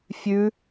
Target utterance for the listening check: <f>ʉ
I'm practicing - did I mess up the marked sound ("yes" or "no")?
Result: yes